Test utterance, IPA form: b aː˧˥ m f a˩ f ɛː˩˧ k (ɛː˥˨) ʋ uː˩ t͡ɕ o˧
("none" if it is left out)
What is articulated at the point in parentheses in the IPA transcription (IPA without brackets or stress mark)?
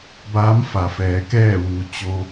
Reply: ɛː˥˨